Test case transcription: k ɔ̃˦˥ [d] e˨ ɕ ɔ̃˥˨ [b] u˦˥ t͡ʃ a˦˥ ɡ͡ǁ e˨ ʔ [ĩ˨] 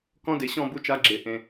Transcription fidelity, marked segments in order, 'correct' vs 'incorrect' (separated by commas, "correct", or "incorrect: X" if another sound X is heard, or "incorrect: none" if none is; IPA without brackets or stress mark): correct, correct, incorrect: ẽ˨